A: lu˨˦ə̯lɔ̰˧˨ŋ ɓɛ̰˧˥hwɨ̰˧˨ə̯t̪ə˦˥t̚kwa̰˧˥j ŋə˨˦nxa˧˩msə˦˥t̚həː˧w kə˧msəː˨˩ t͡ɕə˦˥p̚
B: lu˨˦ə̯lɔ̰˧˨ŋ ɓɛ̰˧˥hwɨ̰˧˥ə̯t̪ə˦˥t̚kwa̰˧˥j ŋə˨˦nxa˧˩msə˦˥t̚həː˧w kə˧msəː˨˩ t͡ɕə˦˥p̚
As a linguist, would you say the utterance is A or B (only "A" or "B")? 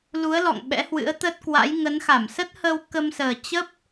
B